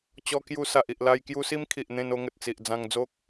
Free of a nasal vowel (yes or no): no